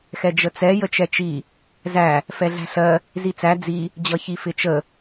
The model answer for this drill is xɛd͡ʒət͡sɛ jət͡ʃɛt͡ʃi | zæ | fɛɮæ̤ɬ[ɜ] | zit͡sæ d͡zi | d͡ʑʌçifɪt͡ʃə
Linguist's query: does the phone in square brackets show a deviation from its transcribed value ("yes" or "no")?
no